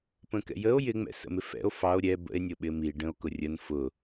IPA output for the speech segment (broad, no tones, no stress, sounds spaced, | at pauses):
p ə̃ k ɛ̰ j ə o̯ j ɪ ŋ͡m ɛ̰ s ə̰ m ɪ f ɛ̰ o̯ f ɑ o̯ ɾʲ ɛ b ə̰ e̯ nʲ ʊ ɓ ɪ m i ɖ ə̃ o̯ k ʊ rʲ ə n f ʊ